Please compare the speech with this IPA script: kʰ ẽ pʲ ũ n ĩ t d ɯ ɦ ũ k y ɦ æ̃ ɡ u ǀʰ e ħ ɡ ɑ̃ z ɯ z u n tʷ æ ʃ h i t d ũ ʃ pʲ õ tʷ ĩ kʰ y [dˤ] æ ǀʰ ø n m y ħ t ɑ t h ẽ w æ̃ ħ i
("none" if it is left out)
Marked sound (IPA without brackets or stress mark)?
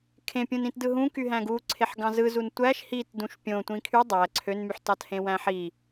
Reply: dˤ